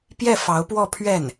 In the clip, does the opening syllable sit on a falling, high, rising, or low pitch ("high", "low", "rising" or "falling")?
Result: falling